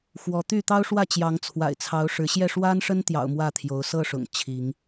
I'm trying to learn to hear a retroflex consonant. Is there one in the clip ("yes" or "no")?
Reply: yes